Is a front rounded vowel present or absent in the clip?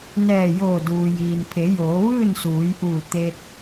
absent